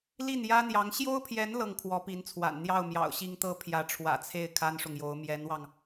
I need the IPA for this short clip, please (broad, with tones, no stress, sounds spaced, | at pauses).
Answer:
l i˥˩ n j ä˥ n̪ j ɑ˧˥ ŋ ɕ j o˥ ʊ̯ pʰ j ɛ˧˥ n l ɤ˥˩ ŋ kʰ w ɔ˧˥ p i˧˥ n t͡sʰ w a̰˨˩ n n̪ j ɑ˥˩ ʊ̯ m j ɑ̰˨˩ ʊ̯ ɕ i˥ ŋ t̪ ɤ˥ pʰ j ä˧˥ ʈ͡ʂʰ w ä̰˨˩ t͡sʰ e˥˩ ɪ̯ kʰ a˥ n ʂ ʊ˨ ŋ j o˧˥ ʊ̯ m j ɛ˧˥ n w ɑ˧ ŋ